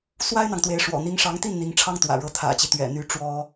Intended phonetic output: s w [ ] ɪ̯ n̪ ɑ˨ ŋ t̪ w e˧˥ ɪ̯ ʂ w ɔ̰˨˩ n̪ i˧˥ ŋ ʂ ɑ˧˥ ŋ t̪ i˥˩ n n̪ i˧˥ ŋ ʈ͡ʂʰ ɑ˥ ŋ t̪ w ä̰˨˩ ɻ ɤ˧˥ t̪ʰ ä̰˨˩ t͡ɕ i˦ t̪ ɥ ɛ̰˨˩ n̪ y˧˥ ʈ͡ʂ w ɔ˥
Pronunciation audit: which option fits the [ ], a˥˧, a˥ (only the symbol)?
a˥